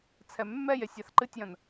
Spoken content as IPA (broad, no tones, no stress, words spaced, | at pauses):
t͡sʰɛmːɛje sʲaθǃɨtʲjɐ̃n